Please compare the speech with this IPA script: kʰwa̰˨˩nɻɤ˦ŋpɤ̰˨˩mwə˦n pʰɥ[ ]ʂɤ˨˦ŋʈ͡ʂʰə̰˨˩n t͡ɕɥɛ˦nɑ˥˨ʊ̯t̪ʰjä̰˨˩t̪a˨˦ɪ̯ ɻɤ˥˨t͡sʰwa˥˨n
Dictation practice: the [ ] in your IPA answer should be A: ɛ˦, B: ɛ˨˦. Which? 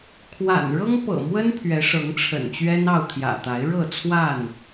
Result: B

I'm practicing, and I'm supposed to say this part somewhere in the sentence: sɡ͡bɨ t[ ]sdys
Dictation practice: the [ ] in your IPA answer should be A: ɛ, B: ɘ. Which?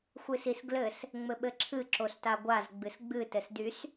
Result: B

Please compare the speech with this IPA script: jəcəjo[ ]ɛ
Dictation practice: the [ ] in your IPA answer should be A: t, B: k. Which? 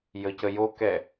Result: B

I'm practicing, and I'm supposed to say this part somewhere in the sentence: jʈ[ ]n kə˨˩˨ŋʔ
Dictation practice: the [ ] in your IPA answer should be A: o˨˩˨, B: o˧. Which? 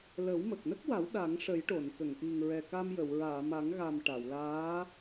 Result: A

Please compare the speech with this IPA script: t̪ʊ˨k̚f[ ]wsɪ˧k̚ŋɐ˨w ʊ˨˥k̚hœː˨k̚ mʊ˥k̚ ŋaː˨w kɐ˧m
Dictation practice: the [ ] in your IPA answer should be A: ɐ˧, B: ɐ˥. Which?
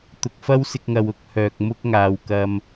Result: B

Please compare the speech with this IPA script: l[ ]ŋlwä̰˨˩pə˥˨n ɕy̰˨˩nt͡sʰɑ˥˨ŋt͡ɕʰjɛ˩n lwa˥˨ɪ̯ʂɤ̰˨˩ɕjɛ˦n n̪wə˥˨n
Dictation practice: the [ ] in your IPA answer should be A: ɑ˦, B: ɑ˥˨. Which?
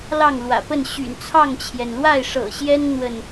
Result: B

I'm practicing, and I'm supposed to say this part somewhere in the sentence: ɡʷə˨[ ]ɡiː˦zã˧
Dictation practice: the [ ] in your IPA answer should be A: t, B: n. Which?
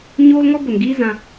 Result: B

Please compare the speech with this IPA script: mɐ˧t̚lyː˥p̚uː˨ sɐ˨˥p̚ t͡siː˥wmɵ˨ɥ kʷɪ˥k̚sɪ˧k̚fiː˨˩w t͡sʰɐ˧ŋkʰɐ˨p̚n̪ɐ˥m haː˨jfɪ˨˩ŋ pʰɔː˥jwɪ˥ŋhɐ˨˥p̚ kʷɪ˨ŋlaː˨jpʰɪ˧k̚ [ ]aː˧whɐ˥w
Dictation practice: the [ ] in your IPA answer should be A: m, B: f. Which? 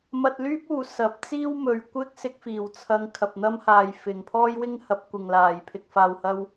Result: B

